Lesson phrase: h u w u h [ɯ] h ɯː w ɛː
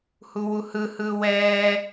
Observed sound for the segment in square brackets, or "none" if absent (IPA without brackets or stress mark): ɯ